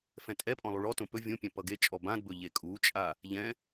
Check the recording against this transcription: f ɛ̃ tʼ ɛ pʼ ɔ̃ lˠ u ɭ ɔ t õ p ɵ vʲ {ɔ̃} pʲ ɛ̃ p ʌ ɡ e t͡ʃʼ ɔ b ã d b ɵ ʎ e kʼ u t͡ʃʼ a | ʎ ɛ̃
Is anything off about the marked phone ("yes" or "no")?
yes